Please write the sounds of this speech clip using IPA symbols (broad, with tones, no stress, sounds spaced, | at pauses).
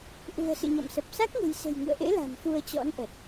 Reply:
ʔ ṳ˨˩ ə̯ s ɨ̰˧˨ ɲ ɔ̰˧˨ m s ə˨˩ p̚ s a˦˥ k̚ ŋ e̤˨˩ j s e̤˨˩ j ŋ ɨ̰˧˨ ə̯ ʔ ḛ˧˥ l a̤˨˩ m f u˧ ə̯ t͡ɕ ɔ̰˧˥ n ʔ ə˨˩ t̚